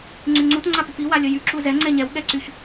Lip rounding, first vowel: rounded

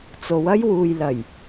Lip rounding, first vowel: rounded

